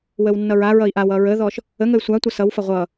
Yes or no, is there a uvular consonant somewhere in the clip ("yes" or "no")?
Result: yes